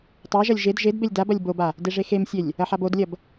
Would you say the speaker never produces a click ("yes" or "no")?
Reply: yes